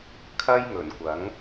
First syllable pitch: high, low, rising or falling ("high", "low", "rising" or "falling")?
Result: high